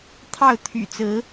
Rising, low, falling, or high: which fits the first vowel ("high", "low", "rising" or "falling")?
falling